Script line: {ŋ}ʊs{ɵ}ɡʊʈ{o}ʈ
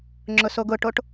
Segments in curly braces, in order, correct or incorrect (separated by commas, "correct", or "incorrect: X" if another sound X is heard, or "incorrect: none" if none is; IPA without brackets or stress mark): incorrect: ŋ͡ǁ, incorrect: o, correct